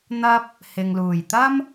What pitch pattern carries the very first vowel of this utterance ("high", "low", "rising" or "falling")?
high